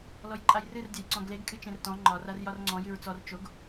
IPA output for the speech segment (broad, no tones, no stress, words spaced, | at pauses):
lɔjǃʼajrɨr dʲajǀɔ̃ɡleɡ kʼɨt͡ʃẽrtɔ̃ ŋ͡ǃɒr arjɒrŋ͡ǀɔ̃ jɨɹt͡sɔr t͡ʃoɡ